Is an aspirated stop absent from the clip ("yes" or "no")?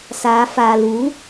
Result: yes